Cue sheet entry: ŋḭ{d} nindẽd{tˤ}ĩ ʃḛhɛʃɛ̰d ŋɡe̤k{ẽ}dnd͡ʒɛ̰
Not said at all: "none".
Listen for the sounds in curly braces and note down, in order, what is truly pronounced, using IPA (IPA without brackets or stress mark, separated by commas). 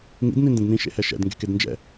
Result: d, n, e